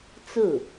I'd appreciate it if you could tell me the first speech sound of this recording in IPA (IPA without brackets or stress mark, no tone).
t͡s